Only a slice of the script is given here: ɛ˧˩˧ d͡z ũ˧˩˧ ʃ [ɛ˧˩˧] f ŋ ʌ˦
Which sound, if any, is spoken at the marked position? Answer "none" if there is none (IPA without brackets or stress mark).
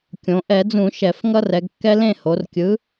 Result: ɛ˧˩˧